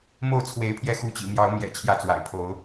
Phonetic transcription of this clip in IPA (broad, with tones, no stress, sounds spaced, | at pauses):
m o˥˨ ʊ̯ t͡sʰ w e˨˦ ɪ̯ pʰ j ɛ˧ x u˨˦ t͡ɕ ḭ˨˩ m j ɑ˨˦ ʊ̯ m j ɛ̰˨˩ t͡ɕʰ j ä˥˨ t͡s w a̰˨˩ ɪ̯ pʰ o˨˦ ʊ̯